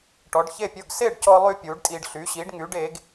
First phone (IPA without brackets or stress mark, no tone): ʈ